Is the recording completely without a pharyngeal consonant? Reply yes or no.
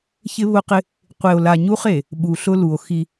yes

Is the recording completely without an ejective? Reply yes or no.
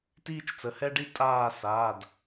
no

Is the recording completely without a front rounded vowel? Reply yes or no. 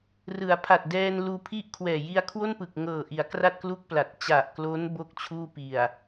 yes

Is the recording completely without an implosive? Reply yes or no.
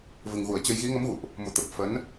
yes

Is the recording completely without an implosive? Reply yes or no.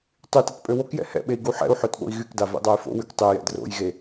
no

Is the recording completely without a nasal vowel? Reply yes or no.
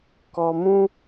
no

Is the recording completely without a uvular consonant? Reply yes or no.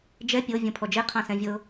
no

